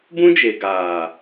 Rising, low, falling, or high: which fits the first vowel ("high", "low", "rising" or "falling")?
high